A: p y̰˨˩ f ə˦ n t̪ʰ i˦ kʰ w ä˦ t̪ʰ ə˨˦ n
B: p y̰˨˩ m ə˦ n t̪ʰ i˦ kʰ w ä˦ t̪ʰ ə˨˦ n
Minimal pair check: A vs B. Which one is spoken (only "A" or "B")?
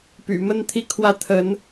B